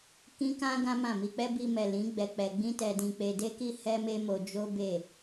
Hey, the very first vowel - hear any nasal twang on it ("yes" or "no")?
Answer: yes